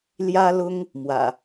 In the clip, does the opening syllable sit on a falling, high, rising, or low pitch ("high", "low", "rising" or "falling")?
high